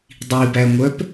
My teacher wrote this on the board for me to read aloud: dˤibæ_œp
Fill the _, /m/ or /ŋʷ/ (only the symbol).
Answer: ŋʷ